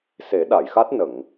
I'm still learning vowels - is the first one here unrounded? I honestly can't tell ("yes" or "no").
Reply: yes